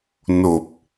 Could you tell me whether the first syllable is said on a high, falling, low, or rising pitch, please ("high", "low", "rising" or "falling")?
low